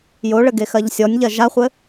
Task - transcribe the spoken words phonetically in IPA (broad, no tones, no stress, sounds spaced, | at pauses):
j o ɭ ɘ ɡ e x ɜ ʎ sʲ ɔ nʲ ʎ ɜ ʒ a χʷ ɘ